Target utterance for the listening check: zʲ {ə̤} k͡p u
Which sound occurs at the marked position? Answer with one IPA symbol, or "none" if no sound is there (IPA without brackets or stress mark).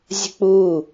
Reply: ə̤